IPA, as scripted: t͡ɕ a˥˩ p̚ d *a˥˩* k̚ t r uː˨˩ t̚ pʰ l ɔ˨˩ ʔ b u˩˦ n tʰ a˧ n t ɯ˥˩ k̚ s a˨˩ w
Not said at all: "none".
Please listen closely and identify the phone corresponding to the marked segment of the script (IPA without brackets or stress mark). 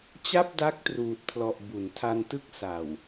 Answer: a˦˥